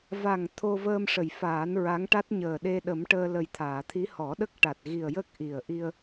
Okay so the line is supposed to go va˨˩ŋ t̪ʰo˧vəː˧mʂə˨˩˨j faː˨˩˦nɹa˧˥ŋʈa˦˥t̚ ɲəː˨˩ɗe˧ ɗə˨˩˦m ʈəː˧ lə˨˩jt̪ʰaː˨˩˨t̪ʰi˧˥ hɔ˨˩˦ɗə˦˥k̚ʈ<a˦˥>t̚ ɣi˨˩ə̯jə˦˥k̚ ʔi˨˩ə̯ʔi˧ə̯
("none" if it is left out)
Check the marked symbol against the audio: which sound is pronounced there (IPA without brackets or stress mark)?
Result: a˨˩